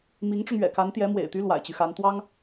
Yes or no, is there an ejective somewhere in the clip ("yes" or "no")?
no